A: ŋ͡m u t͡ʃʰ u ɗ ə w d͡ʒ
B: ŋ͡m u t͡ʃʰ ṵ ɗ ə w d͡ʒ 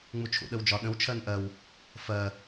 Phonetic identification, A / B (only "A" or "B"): B